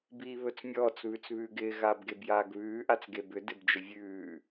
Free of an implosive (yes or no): yes